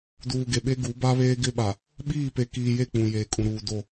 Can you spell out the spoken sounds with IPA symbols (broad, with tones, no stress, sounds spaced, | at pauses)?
d uː˨ ɡ e˨ ɓ e˦ ɡ u˨˦ b a˦ β eː˦ ɡ ɪ˦ ɓ a˨ | ɓ iː˦˨ p e˨ k iː˨ j e˦˨ k͡p ũ˨ j eː˨ kʼ ũ˨ ɾ uː˨ d o˦˨